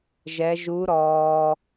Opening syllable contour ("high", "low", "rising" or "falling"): rising